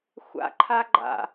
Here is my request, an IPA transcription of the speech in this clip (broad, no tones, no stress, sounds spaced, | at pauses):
xʷ a̰ ǃʰ a ɡ͡ǃ a̰